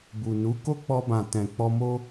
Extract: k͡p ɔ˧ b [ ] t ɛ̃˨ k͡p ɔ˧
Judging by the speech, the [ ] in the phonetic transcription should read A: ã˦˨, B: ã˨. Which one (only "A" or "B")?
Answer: B